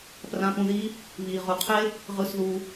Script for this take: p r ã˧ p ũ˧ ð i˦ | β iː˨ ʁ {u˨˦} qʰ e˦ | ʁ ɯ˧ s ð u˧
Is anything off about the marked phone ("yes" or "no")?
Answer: no